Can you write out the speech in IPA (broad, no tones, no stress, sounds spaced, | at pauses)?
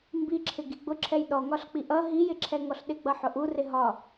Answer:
m b i ǁʰ ɪ ɡ i ɡ͡b ʊ ǁʰ ɛ j ɗ ɔ ŋ ɒ ɬ k͡p i ʔ ʌ ɦ i j ɪ ǁʰ ɛ ŋ ɔ ɬ ɗ ɪ ɡ͡b ʌ ħ ʊ ʔ u r ɪ ɦ ɒ